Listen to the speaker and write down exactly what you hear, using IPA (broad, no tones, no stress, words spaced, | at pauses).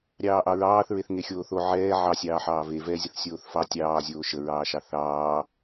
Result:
ɾʲɑːʔɑɹɑːθ ɹeθŋexʲoːθo ʕɛː ʕɑ sʲɑːħɑːve vɛzʲəθ sʲoːθfɑ tʲɑːzʲoː ʃəɹɑːʃɑ θɑː